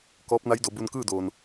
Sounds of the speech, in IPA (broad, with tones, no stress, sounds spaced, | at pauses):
k ɔː˧˥ p̚ n a˧˥ j d o˩˧ b u˧ n k ɯː˥˨ d oː˩ n